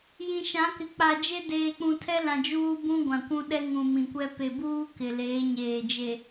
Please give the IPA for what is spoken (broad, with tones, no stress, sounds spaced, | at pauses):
j ĩ˨ ʃ ã˨˦ k ɪ˨ k͡p a˨ d͡ʒ e˦ d eː˨ k͡p ũ˨ tʰ ɛ˦ l ã˨ d͡ʒ uː˦ b ũ˦ ɡʷ ã˨ kʷ ũ˦ ɗ ɛ˦ ŋ ũ˨ m ĩ˨ kʷ ɛ˦ p e˨ b uː˦ k ɪ˨ l eː˨˦ ɲ eː˨ d͡ʒ e˨